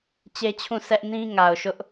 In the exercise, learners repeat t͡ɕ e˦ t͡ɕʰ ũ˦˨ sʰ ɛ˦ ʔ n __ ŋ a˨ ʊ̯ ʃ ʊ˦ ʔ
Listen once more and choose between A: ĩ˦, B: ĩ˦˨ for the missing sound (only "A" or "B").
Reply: A